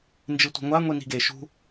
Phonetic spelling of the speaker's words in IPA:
n d͡ʒ ɨ tʷ i̤ ŋʷ a ŋʷ i n i̤ ɡ e ʃ ṳ

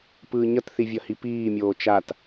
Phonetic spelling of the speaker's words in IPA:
p ɯː ɲ ʌ t θ i vʲ ʌ h i p iː mʲ oː t͡ʃ a t

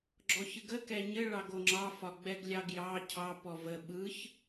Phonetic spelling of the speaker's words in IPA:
ɡ͡ǁ ɔ ç ɯ ɡ ə k ɛ ɲ ɘ ɭ ɑ ɡ o ŋ͡ǁ ɑ f ɒ ɡ͡b ɛ ɡ lʲ ɑ ɡ j ɑ cʰ ɑ p ɔ v ə ɓ ɯ ç

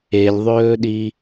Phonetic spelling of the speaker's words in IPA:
e lʲ ðˤ ɵː ɗ i

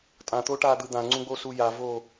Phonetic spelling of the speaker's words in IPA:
tʼ ã t̪ o ʈ a d̪ ɯ d̪ ã ŋ͡ǀ ũ ɡ͡b o s u j a v o

